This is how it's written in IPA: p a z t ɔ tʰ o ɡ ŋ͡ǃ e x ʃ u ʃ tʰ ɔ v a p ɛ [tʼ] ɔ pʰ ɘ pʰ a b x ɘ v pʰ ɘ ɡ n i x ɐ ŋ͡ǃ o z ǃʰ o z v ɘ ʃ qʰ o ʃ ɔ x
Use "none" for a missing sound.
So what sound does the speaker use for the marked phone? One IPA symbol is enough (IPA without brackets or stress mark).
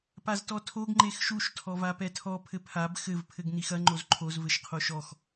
tʰ